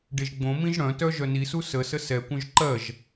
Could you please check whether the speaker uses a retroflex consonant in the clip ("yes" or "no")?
yes